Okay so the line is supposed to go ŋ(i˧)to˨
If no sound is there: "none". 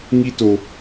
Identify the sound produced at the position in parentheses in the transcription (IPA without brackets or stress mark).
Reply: i˧